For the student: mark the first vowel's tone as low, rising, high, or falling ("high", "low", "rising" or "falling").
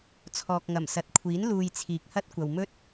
low